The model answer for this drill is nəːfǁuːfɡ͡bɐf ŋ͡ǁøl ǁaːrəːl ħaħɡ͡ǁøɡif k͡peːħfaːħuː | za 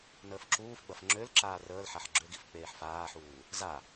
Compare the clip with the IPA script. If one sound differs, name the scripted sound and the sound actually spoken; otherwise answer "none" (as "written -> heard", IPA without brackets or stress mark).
none